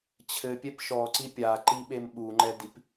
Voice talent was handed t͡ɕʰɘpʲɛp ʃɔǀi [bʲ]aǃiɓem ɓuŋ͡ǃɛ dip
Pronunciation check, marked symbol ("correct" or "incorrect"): incorrect